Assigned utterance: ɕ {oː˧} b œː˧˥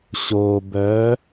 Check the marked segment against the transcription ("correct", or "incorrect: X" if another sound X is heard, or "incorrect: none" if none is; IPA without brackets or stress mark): correct